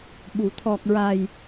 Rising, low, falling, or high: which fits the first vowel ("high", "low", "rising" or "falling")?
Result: low